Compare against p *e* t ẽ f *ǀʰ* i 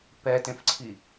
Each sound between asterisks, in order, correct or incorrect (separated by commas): incorrect, correct